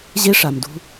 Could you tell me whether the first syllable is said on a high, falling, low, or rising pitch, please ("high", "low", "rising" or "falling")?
high